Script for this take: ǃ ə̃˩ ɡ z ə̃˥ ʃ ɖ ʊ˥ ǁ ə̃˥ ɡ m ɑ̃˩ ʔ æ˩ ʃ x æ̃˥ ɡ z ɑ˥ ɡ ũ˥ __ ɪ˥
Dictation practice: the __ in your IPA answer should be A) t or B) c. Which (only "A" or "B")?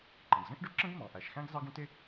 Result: A